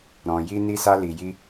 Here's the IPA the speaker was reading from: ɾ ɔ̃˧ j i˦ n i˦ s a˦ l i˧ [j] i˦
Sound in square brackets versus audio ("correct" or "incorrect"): correct